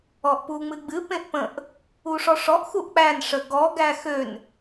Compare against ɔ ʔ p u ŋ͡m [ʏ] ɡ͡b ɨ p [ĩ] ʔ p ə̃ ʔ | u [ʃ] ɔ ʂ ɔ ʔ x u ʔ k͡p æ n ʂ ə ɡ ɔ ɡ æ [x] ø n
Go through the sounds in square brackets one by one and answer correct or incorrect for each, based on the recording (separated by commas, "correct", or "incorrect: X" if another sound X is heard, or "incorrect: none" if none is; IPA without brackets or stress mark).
incorrect: ɨ, incorrect: ẽ, incorrect: ʂ, correct